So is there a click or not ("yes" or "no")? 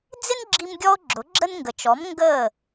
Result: yes